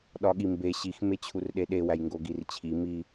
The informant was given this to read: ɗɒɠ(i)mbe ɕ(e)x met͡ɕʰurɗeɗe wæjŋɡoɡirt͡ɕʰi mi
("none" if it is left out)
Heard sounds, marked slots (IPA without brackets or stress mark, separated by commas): i, i